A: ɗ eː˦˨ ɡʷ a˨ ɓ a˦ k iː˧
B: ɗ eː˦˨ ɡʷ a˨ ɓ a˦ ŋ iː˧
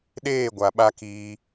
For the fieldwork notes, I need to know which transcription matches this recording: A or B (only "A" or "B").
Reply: A